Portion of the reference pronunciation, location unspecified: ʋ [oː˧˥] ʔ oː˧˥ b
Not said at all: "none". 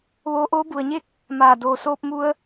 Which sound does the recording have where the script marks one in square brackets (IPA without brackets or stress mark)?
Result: oː˧